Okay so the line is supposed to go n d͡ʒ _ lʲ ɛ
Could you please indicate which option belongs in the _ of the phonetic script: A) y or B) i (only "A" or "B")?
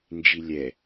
B